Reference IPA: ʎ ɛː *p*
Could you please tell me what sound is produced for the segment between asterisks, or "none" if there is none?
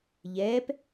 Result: p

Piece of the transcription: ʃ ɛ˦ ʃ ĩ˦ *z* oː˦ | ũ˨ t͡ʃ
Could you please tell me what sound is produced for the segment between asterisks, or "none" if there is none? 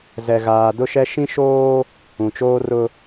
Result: ʃ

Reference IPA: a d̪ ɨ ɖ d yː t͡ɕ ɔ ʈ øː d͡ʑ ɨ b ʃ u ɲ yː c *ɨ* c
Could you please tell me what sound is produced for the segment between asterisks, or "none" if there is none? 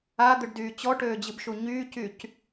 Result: y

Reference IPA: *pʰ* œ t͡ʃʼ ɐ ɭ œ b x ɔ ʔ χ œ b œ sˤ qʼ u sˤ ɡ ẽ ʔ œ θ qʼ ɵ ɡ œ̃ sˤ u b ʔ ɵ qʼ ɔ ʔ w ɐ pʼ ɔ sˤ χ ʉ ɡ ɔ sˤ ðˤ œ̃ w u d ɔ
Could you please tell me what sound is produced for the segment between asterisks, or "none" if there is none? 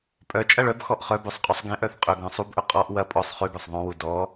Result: pʼ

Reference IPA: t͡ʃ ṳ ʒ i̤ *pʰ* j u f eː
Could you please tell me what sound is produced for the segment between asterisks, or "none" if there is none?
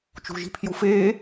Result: pʰ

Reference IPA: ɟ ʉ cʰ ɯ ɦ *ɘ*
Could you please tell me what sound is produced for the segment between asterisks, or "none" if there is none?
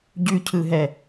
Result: ɛ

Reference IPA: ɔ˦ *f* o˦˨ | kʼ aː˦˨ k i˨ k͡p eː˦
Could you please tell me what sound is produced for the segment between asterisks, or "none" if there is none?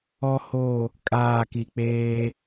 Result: h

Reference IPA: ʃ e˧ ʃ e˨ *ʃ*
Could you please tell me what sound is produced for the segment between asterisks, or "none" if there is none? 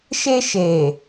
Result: none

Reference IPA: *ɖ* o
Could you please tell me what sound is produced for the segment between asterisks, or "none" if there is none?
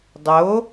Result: dˤ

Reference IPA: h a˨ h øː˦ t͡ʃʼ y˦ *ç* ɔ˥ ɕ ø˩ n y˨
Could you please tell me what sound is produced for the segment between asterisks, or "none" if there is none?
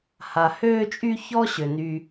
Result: ç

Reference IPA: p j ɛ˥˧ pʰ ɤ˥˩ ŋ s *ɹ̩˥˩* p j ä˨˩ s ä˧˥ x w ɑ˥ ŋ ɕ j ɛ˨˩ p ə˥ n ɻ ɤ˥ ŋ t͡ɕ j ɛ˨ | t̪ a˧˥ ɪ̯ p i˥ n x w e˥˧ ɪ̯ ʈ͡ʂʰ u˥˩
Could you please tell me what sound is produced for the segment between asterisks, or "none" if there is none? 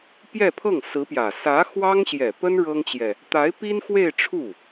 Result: ɹ̩˧˥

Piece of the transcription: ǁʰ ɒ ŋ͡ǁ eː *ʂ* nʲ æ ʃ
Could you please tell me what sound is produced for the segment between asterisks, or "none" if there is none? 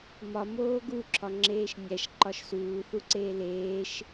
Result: ʃ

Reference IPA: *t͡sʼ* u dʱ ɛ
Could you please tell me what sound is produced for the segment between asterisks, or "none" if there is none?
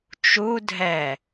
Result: t͡ʃ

